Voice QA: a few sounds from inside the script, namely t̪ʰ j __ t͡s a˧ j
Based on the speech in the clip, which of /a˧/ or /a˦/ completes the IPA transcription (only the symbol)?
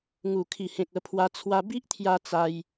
a˧